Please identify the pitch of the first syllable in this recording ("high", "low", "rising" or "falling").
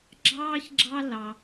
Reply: high